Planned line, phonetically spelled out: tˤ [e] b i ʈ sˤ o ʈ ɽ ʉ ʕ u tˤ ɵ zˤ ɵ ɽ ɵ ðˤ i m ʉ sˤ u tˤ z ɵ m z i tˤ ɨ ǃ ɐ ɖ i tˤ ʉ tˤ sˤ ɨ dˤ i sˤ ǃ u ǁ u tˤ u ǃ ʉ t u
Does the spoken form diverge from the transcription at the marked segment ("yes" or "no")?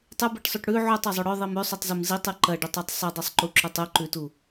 yes